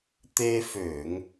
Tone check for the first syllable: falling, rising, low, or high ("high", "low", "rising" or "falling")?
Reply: high